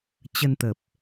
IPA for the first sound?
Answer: t͡ɕ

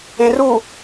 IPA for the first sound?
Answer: ẽ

